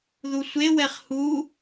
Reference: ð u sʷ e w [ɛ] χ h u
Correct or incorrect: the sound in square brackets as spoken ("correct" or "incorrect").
correct